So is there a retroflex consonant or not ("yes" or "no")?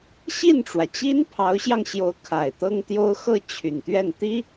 yes